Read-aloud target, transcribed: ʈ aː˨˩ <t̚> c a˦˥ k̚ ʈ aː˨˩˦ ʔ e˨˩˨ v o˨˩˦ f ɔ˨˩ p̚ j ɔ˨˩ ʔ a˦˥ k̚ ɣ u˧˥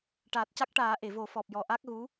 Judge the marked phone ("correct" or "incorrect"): correct